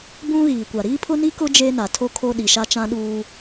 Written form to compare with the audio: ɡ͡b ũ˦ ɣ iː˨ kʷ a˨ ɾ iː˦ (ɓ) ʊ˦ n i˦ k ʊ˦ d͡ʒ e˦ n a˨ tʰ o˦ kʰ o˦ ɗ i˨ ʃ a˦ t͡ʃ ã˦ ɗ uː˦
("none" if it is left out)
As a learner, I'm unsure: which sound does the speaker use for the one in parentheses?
pʰ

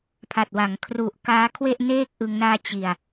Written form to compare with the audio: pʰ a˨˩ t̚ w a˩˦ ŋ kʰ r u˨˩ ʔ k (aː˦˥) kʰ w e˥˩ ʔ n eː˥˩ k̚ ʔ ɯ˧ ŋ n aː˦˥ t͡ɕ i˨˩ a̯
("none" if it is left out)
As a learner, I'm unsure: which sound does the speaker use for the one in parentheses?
aː˦˥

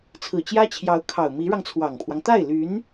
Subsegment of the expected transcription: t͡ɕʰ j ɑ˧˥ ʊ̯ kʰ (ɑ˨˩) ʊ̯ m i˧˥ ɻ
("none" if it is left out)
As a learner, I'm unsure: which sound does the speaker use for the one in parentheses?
ɑ˨˩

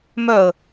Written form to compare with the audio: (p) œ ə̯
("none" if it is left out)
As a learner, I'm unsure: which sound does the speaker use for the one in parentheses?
m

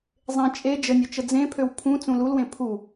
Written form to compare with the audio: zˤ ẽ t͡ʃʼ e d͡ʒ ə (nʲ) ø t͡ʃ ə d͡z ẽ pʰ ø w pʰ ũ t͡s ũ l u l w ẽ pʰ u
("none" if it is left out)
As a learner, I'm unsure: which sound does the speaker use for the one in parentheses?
nʲ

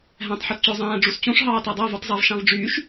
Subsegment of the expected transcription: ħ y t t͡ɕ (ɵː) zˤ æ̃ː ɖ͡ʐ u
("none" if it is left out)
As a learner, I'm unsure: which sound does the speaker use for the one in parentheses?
ɵː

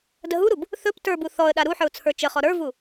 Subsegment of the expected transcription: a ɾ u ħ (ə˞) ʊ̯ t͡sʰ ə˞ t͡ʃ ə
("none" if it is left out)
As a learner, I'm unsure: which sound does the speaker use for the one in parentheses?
ə˞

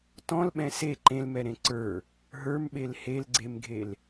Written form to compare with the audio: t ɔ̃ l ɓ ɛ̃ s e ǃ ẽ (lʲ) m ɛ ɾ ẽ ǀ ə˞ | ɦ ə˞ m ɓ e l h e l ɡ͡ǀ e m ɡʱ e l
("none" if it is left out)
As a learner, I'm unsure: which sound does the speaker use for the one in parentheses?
l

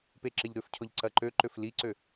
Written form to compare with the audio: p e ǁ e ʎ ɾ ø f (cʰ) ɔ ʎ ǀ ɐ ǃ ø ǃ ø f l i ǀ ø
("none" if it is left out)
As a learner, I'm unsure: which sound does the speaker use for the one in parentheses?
cʰ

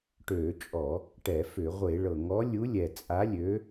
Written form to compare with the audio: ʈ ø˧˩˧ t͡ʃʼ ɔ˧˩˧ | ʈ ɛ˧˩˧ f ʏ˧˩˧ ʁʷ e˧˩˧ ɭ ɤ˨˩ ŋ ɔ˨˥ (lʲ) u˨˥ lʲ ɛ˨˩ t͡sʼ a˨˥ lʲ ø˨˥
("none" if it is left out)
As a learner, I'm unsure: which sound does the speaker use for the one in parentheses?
lʲ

